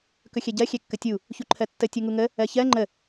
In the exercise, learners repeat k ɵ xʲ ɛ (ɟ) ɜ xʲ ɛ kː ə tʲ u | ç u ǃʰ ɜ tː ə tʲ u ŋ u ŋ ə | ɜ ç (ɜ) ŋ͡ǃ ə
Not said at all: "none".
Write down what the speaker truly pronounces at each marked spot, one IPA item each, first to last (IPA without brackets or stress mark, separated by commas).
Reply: ɟ, ɜ